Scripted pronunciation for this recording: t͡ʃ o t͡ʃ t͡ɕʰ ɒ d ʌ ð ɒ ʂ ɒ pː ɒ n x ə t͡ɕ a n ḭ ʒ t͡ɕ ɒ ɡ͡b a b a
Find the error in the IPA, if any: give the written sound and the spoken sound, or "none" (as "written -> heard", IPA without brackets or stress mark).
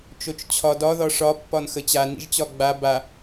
ʌ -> ɒ